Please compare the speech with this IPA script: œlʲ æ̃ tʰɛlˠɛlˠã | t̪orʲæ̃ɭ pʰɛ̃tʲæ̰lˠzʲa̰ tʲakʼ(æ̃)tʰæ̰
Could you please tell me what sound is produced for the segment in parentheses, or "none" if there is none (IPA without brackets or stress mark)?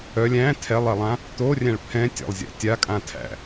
ã